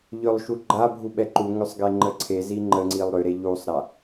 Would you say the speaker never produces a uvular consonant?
yes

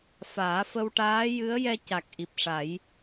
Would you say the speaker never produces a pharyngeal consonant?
yes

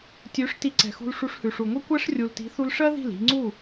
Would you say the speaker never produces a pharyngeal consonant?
yes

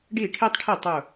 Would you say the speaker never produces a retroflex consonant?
no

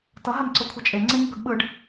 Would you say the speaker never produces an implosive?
no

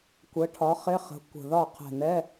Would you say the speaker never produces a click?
yes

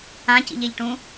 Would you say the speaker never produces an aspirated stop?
yes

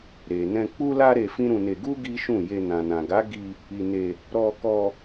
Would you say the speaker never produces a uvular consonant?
yes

